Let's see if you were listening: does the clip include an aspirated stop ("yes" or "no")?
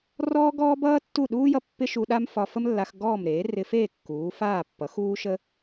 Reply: no